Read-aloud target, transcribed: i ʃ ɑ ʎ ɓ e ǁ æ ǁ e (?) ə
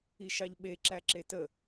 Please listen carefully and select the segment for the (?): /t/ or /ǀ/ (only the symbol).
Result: t